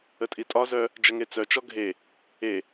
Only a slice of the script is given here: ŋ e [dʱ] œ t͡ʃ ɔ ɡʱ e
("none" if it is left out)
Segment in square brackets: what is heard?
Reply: t͡s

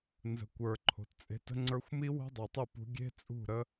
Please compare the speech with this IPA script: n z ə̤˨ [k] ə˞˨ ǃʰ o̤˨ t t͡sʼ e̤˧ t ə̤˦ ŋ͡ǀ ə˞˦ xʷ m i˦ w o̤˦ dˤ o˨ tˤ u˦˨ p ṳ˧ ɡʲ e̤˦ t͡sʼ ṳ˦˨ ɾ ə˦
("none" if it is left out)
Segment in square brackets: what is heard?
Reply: kʷ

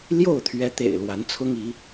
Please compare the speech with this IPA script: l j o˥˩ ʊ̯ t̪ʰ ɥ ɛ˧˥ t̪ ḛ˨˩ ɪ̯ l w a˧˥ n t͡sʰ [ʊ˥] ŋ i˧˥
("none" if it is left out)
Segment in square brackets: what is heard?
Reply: ʊ˥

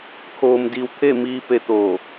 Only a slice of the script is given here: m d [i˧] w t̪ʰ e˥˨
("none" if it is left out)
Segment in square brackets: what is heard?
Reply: i˧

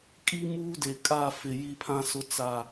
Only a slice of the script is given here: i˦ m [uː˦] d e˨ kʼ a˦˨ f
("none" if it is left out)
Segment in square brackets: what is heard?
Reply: uː˦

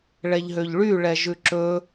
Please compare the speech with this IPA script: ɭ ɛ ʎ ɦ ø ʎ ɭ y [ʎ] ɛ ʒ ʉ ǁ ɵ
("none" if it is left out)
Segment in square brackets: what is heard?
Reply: ɭ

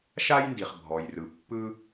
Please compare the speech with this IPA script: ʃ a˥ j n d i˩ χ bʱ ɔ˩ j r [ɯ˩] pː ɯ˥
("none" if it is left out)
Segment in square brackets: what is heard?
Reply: ɯ˩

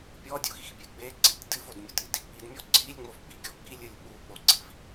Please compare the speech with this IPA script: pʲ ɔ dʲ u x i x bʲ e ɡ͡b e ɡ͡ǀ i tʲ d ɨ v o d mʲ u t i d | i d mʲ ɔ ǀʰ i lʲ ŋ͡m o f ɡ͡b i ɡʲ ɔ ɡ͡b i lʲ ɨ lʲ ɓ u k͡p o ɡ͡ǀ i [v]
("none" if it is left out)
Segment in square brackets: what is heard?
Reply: v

